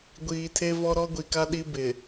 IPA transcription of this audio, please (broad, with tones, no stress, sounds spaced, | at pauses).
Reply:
ɡʷ iː˨ tʰ e˦ v ɔ˦ ɾ ɔ˦ ɡʷ i˨ k a˦ ɗ i˦ b ɪ˨